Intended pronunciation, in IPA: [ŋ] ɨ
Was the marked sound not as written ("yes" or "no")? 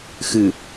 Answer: yes